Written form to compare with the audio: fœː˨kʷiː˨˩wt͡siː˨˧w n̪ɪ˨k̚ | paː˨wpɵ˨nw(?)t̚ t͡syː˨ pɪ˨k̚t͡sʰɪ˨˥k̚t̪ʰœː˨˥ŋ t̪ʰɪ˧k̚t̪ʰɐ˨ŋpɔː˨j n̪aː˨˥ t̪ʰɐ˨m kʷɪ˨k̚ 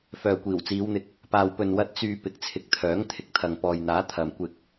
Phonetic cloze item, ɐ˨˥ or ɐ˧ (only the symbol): ɐ˧